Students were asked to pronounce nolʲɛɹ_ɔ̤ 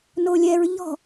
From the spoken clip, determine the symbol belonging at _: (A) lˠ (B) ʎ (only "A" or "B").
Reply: B